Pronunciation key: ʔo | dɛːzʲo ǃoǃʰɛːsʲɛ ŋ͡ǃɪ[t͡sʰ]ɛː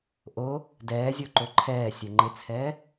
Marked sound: correct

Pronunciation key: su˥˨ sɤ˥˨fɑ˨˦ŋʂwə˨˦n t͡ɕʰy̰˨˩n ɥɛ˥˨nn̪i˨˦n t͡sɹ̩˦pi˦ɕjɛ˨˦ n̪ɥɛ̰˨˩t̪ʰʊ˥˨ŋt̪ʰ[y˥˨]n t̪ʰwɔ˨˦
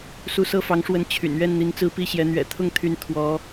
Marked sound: incorrect: y˨˦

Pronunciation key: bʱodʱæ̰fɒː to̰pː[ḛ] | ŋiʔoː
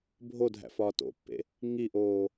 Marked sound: correct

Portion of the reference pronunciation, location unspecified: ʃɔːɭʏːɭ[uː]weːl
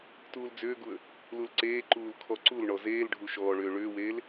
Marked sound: incorrect: ʏː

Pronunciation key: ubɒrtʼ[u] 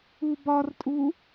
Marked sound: correct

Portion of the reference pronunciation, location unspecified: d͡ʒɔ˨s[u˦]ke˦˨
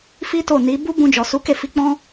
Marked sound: incorrect: u˨˦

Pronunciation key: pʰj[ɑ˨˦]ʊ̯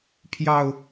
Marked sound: incorrect: ɑ˨˩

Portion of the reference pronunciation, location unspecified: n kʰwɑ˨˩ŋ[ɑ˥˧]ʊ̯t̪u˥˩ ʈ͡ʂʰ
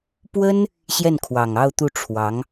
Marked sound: correct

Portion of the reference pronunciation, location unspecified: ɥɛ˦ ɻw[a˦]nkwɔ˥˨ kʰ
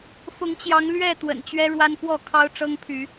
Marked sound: correct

